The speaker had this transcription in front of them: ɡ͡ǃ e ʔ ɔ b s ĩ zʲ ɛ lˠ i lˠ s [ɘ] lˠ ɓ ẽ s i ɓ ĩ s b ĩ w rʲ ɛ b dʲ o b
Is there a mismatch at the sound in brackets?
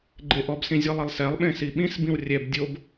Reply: yes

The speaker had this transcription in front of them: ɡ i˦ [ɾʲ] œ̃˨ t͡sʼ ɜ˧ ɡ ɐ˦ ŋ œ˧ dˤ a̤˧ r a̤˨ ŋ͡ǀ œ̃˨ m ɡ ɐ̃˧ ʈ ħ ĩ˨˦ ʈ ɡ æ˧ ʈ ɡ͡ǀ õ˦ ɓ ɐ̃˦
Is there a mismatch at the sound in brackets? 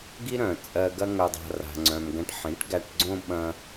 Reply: yes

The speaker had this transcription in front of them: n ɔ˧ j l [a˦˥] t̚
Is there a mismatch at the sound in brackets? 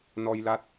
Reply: no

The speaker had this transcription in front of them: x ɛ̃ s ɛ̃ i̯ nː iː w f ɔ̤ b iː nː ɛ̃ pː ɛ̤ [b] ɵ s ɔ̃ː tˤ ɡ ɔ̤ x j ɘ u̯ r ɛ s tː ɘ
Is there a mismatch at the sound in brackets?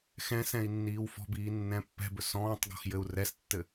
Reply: no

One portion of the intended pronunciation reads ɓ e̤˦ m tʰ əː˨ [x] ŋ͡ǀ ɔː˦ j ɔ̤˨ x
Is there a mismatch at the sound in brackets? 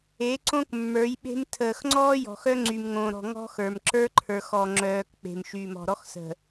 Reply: no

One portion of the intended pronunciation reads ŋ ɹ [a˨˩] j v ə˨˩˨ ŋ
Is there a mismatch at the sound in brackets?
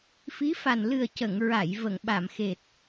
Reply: yes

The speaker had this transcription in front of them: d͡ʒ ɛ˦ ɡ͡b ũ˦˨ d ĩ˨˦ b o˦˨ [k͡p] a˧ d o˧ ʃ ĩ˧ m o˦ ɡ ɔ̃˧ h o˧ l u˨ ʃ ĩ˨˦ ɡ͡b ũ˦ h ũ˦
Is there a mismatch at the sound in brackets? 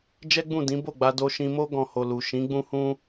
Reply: yes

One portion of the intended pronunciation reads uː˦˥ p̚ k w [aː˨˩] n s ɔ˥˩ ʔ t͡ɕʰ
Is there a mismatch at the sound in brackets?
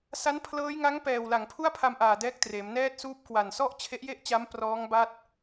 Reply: yes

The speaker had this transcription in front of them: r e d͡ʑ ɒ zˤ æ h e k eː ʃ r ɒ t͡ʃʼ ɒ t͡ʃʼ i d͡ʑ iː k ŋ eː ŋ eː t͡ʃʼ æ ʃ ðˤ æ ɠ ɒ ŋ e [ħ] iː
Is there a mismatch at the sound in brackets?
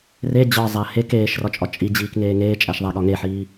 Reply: no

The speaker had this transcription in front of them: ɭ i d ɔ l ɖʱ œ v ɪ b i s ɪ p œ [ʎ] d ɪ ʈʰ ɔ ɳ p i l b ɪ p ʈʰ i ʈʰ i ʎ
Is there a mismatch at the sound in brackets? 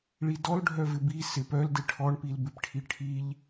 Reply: yes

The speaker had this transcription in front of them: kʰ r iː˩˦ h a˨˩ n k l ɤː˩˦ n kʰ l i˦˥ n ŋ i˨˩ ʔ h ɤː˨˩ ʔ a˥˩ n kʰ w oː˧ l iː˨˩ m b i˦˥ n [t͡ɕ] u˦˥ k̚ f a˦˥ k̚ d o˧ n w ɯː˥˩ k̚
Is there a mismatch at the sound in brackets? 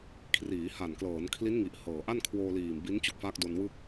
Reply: no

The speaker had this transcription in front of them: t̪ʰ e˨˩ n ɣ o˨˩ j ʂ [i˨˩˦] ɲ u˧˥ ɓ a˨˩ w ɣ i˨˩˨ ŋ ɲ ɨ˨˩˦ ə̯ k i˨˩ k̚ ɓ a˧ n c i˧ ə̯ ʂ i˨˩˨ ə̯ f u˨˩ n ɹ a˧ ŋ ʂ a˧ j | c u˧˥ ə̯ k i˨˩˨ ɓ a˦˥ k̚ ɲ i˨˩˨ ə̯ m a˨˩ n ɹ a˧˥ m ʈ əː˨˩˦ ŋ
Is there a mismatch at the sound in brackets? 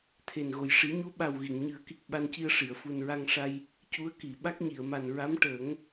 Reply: no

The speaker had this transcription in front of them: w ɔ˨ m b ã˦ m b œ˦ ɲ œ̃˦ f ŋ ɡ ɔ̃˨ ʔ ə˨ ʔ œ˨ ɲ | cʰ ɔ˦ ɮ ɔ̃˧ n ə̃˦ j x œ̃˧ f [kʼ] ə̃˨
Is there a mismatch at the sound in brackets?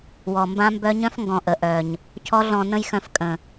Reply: no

